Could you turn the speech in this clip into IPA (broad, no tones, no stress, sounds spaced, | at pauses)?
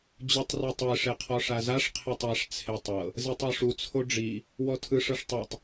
d͡ʑ u tˤ r ɤ tˤ e ʂ e qʰ ɔ ʂ a z a ʂ qʰ e tˤ a ʂ t͡sʰ e tˤ ɤ | z e tˤ ɔ ʂ u t͡sʰ o ɖ͡ʐ i | w ɔ tʰ ɯ ʂ ɤ ʂ tˤ i tˤ